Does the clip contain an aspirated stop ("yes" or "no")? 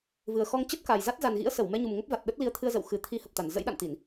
yes